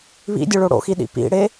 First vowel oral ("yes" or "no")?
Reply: yes